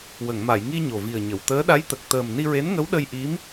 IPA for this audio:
w ə˨˩˨ ŋ m a˨˩˨ j ŋ i˧ ɲ o˨˩ v i˨˩ ə̯ ɲ ə˨˩˨ w t̪ əː˧˥ ɗ a˧˥ j t̪ ə˨˩ k̚ t̪ əː˨˩ m n i˧ ɹ e˧˥ n ŋ ə˧˥ w ɗ ə˧ j ʔ i˧˥ m

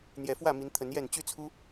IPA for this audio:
n̪ j ɛ˨˩ f w ä˥˨ m i˨˦ n t̪ʰ ə˨˦ n j ɛ˥˨ n t͡ɕ y˦ t͡sʰ u˦

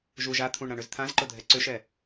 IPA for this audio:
ʒ u ʒ a t̪ʰ ũ ɳ ɾ ã ɳ ʏ z t̪ʰ ã z ǃ ʊ dʱ ɛ ǀ ʏ ʃ ɛ

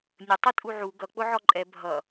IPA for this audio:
nʲ ə tˤ ʌ tʼ u ʕ u ɡ ʌ k͡p ʊ ʕ ɔ ǃʼ ɛ bʱ ʌ

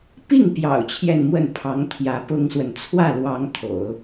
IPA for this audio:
p i˥˩ ŋ p j ɑ̰˨˩ ʊ̯ t͡ɕʰ j ɛ˥˧ n m w ə˥˩ n pʰ ɑ˧˥ ŋ t̪ʰ j ä˧˥ p ʊ˥ ŋ s w ə˨ n t͡sʰ w ä˥˩ l w ɑ˧˥ ŋ t̪ʰ o̰˨˩˦ ʊ̯

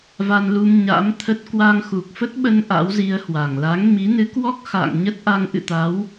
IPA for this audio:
v a˧ n l u˧ m ɲ a̰˧˥ m t̪ʰ ə˦˥ t̚ k w a˧ ŋ x u˨˩ k̚ f ə˦˥ t̚ ɓ ə˧ n ʔ a̰˧˥ w z i˧ ə̯ h w a˧˩ ŋ l a˨˦ ŋ m i˨˦ n ɨ˨˦ k w ɔ˦˥ k̚ x a̰ː˧˨ ŋ ɲ ə˦˥ t̚ ʔ a˧ ŋ ʔ ɨ̰˧˨ t̪ a˨˦ w

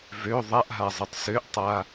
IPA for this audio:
v ø ðˤ a ʔ ɦ a zˤ e tˤ s ø ʔ tˤ a

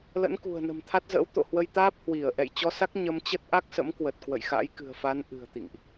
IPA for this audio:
l ə̰˧˥ n k ṳ˨˩ ə̯ n ə̤˨˩ m t̪ʰ a˦˥ t̚ z ə̰ː˧˥ w t̪ o̰˧˨ h w ə˧ j t̪ aː˦˥ p̚ h w i˧˩ ə̯ ʔ ɛ̰˧˨ j t͡ɕ ɔ˧ s a˦˥ k̚ ɲ ə˧ m t͡ɕ ə˦˥ t̚ ʔ a˦˥ k̚ s ə̰˧˥ m k w ə˨˩ t̚ k w ə̰˧˨ j x a̰˧˥ j k ɨ̤˨˩ ə̯ f a˨˦ n ʔ ɨ̤˨˩ ə̯ t̪ ḭ˧˨ ŋ ʔ

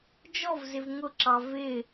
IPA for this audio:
d͡ʒ ɔ v z ɪ v ŋ ʊ ǁ ɑ v ɪ

